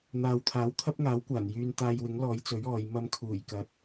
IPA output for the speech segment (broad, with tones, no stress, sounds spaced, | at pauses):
n̪ aː˨ w t̪ʰ aː˨˥ w t̪ʰ ɐ˥ p̚ ŋ aː˨˥ w kʷ aː˨˩ n j yː˧ n t̪ aː˧ j w ɪ˨˥ ŋ l ɔː˨˥ j t͡s ɵ˨˥ ɥ ɔː˨˧ j m ɐ˥ m kʰ uː˨˩ j k ɐ˨˥ t̚